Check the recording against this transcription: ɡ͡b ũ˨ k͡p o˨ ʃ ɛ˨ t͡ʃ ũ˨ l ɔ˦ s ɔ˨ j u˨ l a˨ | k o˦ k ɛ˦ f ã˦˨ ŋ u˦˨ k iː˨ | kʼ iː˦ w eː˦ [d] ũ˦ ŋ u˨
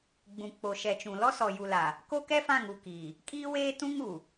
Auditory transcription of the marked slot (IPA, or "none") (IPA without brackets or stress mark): t